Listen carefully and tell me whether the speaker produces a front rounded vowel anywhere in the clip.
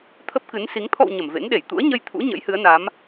no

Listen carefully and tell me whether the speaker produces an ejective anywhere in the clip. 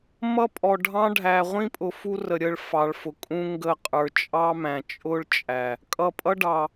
yes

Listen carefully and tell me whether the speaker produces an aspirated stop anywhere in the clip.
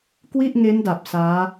no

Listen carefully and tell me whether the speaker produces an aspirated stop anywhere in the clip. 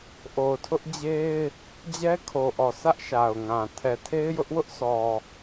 yes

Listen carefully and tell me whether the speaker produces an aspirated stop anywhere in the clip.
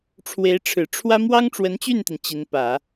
yes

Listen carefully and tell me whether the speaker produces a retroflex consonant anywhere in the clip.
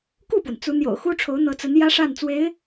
yes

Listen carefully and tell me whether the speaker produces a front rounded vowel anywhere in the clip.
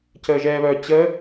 yes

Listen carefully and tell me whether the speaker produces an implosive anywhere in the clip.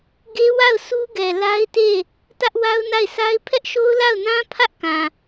no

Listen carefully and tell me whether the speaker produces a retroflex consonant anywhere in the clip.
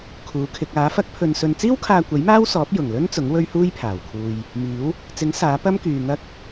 no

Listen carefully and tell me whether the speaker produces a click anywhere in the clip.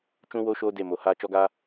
no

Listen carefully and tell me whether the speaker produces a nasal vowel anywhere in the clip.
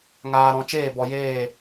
yes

